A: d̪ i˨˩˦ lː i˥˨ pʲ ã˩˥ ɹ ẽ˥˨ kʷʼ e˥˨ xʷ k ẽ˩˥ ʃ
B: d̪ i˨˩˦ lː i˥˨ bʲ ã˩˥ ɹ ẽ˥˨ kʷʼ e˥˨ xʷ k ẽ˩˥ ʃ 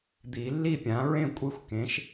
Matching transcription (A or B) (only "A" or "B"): A